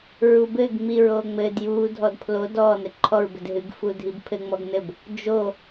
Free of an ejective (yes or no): yes